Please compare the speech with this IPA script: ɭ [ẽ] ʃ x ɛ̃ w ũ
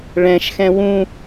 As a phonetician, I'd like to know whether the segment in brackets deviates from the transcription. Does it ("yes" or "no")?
yes